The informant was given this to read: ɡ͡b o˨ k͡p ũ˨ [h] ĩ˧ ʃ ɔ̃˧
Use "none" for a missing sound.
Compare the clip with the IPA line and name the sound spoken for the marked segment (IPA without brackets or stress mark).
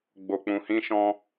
h